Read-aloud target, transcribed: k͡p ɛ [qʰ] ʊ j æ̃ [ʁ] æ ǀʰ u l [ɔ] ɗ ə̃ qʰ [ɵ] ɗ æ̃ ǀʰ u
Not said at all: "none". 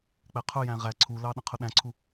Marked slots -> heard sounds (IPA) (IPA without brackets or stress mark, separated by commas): qʰ, ʁ, ɑ, ʊ